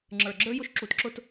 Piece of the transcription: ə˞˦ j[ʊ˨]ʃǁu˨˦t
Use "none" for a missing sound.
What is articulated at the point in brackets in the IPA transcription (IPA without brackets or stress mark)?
ʊ˦